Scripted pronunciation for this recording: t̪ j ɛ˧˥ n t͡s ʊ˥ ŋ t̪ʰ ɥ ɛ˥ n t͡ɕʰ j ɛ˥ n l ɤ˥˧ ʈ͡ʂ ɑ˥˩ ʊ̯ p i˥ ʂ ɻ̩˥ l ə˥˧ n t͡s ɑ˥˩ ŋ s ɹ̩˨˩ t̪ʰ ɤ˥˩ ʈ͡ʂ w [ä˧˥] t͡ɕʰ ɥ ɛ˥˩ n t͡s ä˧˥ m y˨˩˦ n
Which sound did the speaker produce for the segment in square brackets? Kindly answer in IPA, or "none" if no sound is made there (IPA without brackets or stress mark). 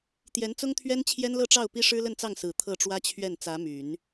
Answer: ä˥